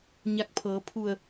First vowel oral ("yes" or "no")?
yes